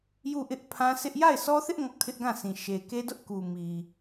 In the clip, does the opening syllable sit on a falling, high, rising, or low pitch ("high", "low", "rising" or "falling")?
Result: falling